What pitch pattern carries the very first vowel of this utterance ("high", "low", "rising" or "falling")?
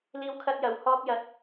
high